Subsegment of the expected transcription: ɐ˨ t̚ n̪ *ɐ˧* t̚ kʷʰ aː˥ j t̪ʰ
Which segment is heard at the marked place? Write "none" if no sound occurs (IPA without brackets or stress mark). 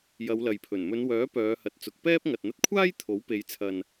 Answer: ɐ˧